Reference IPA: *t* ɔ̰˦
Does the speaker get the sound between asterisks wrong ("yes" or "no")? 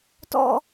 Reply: no